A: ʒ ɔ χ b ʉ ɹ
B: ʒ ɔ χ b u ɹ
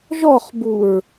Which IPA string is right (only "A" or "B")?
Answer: B